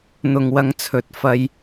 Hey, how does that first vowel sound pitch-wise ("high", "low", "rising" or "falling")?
low